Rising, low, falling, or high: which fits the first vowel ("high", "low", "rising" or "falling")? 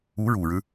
rising